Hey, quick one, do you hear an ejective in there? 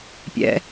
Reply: no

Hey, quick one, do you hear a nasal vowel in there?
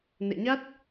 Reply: no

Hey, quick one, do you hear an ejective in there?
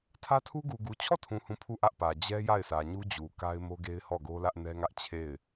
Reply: no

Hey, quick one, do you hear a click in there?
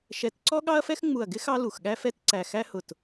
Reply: yes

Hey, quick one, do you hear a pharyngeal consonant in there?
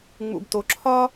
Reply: no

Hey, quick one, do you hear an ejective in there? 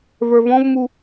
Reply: no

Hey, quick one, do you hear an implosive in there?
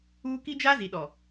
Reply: yes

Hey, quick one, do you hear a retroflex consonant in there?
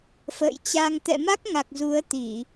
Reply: no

